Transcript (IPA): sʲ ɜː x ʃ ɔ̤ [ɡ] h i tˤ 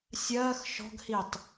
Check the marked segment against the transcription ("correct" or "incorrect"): correct